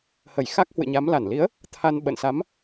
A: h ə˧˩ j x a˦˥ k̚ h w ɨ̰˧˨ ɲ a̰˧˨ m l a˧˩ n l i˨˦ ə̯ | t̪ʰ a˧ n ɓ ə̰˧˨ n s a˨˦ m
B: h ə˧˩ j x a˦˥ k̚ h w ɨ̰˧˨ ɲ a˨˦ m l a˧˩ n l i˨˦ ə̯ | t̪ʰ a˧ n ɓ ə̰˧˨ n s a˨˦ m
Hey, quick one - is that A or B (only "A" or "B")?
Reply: B